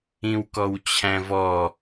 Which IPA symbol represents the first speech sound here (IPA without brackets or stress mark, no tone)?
ĩ